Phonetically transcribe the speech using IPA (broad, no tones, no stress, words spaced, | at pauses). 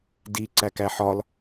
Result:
di ǀækæħɒl